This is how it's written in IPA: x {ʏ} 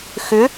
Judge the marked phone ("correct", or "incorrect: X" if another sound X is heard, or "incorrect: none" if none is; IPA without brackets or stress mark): correct